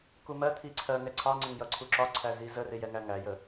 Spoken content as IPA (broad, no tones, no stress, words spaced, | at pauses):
kumɜt̪ʰi ǀʰɜ ŋɛǀʰɑ ŋ͡ǀɪŋjʌǀʰuǁɒ ǀʰæzizərɪ jɛŋæŋæjə